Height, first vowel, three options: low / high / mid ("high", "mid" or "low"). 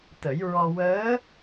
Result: mid